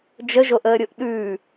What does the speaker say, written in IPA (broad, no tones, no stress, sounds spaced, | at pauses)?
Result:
d͡ʒ ə ʒ o ʔ əː ɾʲ o ʔ ɗ ʉː